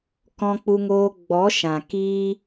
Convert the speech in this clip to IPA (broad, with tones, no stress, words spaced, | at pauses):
kɔ̃˧k͡pu˧ŋoː˧ ɡ͡bɔ˨˦ʃã˨ kiː˦